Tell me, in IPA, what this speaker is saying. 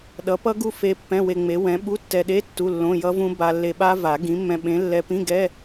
ɗ ʌ˨˥ p ʌ˦˥ ɡ u˦˥ f e˦˥ pː ɛ̃˧˥˧ w e˧ ŋ͡m e˨˥ w ɛ̃˨˥ ɓ u˧˥˧ tː ɛ˧ ɗ e˧˥˧ tː u˧˥˧ lː õ˧˥˧ j ʌ˦˥ v ũ˦˥ b a˧ lː e˧ ɓ a˦˥ v a˨˩˦ ɡ ĩ˨˥ mː ɛ̃˧ ɓ ẽ˨˥ lː ɛ˧ p ĩ˧˥˧ ɡ ɛ˧˥˧

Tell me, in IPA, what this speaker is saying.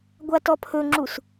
ɡʷ a t ɔ pʰ ɵ ŋ͡ǁ u s

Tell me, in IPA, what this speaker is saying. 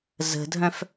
z ə̤ dʱ œ̃ f

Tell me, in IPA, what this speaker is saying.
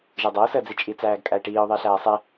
ʒ e dˤ æ ʊ̯ s əː d͡z i t͡ʃʼ i t͡s æː ɡ kʼ æ ɪ̯ ʈ iː ʊ̯ ðˤ ɪː ɬ æː sˤ e

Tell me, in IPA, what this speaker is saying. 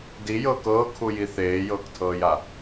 d i j ɤː k ɤː kʰ u j i θ eː j ɤː k tʰ ɤː j a

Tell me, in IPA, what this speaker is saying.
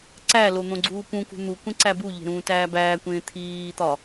ǀ æ l o n̪ õ ɡ͡ǀ uː p ũ k ṳ n̪ u kʷ ẽ ǀ æ b u ʎ e̤ ɾ ũː t æː b æː kʷ ẽː t̪ʰ iː t̪ ɒ

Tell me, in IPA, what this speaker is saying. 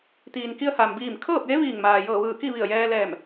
t̪ iː˩ n k i˧ ə̯ h aː˩ m b iː˧˩ m kʰ ɤː˥˨ p̚ j e˧˥ ʋ iː˧˩ ŋ m aː˩ j ɤː˧˩ ʋ ɯː˧˩ k i˥˨ ʋ i˧˩ ə̯ j ɛː˧ l ɛː˧˩ m

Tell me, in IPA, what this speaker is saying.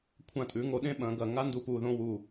kʷʰ ã˧˩ tʼ ʉ˩˧ ŋ o˩˧ ɗ ẽ˥ ɓ ɐ̃˩˧ ɡ ɐ˧˩ ŋ a˥ n d u˧ p u˧˩ ð õ˥˧ w u˧˩

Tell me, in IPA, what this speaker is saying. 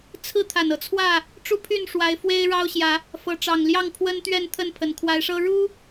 t͡sʰ ɹ̩˥˨ t̪ʰ a˨˩ n ɤ˦ t͡sʰ w ä˥˨ | ʈ͡ʂ u˥˨ pʰ y˥˨ n ʂ w a˨˦ ɪ̯ f w e˦ ɪ̯ ɻ ɑ˦ ʊ̯ ɕ j ä˨˦ | f ɤ˨˦ ʈ͡ʂ ɑ˨˩ ŋ l j ɑ˥˨ ŋ pʰ w ə˦ n t̪ ɥ ɛ˥˨ n t̪ʰ ə˥˨ n pʰ ə˨˩ n kʰ w a˨˦ ɪ̯ ʂ ɤ˦ ɻ u˦

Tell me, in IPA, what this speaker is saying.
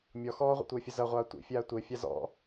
mʲ ɔ x ɔː ʁʷ ḛ tʷ ɘː fʲ ɘ z ɐ ʁʷ aː tʷ ḭ fʲ aː tʷ e fʲ a z ɔ̰

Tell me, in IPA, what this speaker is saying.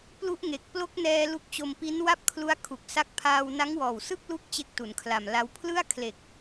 p l u˦˥ ʔ ŋ e˨˩ k̚ p l o˦˥ k̚ n ɛː˧ l u˦˥ k̚ t͡ɕ o˧ m p i˦˥ n w a˥˩ p̚ kʰ l u˦˥ a̯ kʰ u˨˩ k̚ s a˦˥ k̚ pʰ aː˧ w n a˦˥ ŋ w ɔː˨˩ w s ɯ˥˩ k̚ l u˦˥ k̚ t͡ɕ e˦˥ k̚ t u˩˦ n kʰ l a˨˩ m l a˦˥ w pʰ l ɯ˥˩ a̯ kʰ l e˨˩ k̚

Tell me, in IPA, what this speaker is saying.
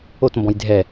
o t m b ɔ̃ j dʱ ɛ

